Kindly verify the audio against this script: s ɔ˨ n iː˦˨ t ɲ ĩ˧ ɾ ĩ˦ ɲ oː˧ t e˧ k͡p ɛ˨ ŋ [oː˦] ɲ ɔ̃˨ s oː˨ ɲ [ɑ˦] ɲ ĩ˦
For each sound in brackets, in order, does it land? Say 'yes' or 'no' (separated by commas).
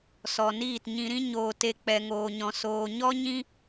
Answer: no, no